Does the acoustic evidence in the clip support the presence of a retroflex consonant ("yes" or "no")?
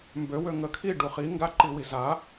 yes